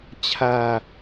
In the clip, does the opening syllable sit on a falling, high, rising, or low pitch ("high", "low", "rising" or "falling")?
low